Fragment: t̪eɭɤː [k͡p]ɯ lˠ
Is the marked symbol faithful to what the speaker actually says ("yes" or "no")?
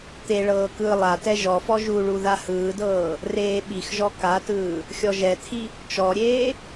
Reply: no